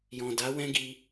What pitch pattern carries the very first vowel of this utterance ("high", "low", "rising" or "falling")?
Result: low